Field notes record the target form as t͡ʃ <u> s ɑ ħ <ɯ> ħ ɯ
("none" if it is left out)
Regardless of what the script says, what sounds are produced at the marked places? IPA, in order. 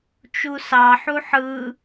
u, u

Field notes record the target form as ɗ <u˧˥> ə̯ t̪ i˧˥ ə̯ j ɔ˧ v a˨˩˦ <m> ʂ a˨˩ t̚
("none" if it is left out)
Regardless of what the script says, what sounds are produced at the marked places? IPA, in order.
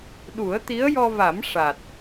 u˨˩˦, m

